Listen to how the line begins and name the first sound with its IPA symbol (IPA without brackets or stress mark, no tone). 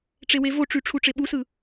ʈ͡ʂ